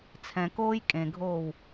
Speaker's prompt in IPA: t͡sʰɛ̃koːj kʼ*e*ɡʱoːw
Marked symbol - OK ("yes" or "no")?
no